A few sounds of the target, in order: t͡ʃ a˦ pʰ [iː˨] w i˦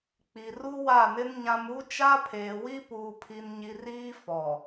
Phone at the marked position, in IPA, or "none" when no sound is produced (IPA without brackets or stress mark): eː˨